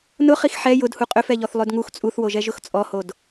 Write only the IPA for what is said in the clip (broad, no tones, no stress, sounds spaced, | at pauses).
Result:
n ʊ χ i x ħ ɛ j ʊ d h u qʼ ø f ɛ ʎ ɔ θ lˠ ø d ŋ u x t͡sʼ u θ w o ʒ ɛ ʒ ʊ x t͡sʼ ɔ h o d